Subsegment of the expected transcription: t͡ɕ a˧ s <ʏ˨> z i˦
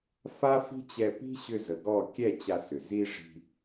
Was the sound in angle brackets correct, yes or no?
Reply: yes